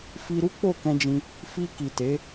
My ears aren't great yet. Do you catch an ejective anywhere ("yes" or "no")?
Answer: no